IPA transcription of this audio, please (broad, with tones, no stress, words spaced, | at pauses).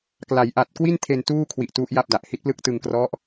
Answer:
kla˩˦jʔa˨˩t̚kwi˥˩n tʰe˧n tuː˥˩kʰwi˨˩ʔ tu˦˥ʔja˥˩p̚da˨˩ʔ hi˦˥t̚plɯ˥˩k̚ tɯ˧ŋkrɔ˦˥ʔ